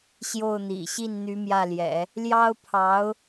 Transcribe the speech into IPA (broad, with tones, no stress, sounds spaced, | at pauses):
ɕ j o˥˩ ʊ̯ n̪ ḭ˨˩ ɕ i˥˩ n n̪ y˧˥ m j ä˥˩ l j ɛ̰˨˩˦ | l j ɑ˥ ʊ̯ pʰ ɑ˧˥ ʊ̯